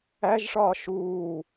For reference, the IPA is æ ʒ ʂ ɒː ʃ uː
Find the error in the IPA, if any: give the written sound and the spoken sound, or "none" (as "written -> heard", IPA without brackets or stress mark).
none